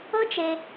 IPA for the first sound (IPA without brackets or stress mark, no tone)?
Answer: ɤ